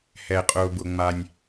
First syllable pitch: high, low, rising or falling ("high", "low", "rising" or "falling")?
low